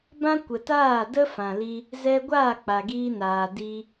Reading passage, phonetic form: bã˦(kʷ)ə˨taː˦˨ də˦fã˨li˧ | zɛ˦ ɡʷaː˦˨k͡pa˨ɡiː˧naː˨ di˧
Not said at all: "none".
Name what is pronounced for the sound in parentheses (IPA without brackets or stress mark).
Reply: kʷ